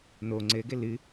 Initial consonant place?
alveolar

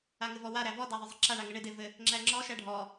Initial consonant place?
velar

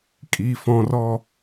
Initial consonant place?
velar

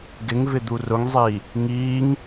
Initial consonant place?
velar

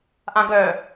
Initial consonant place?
glottal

